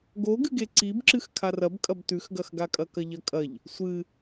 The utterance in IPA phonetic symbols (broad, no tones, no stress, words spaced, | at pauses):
ɡoɡɨɡe ǀibǁɨx kʰarɐbkʼɐb tʉxɡɐxɡakʼɐ kɐʎɐkʼɐʎ | sʷɨ